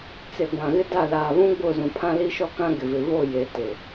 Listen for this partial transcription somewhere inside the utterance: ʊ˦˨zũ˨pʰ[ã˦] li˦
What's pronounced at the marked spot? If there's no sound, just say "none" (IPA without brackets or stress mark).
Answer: ã˦